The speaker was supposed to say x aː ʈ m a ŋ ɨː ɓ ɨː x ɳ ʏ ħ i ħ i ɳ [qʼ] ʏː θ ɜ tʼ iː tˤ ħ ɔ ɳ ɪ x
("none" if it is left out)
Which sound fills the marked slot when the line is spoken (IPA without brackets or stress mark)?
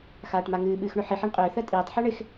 qʼ